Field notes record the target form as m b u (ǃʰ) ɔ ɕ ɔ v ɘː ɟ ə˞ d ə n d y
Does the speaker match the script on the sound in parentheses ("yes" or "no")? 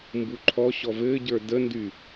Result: yes